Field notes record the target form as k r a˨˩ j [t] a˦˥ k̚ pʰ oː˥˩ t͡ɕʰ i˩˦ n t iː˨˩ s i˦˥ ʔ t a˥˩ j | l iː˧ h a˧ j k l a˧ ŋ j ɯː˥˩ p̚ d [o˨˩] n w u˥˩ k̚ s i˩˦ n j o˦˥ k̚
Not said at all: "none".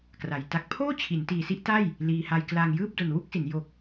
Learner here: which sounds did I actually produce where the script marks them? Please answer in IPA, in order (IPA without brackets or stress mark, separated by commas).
t, o˨˩